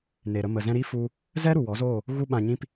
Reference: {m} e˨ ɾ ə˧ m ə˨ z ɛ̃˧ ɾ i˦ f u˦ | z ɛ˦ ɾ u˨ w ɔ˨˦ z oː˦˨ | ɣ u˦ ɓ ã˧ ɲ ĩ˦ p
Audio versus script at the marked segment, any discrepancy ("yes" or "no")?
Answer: yes